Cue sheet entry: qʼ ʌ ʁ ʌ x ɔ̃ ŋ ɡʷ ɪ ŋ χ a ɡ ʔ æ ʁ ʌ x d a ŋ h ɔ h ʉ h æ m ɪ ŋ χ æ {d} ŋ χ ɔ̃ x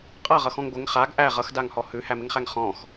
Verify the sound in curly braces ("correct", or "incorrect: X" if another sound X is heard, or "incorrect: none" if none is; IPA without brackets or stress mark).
incorrect: none